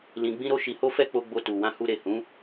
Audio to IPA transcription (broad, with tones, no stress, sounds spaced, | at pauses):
l ĩ˧ ɡ͡b ĩ˦ ɾ o˦ ʃ i˧ h o˦ f ɛ˦ k͡p o˧ ɡ͡b o˧ t u˨ w ã˧ h u˧ ɾ e˨ h ũ˨˦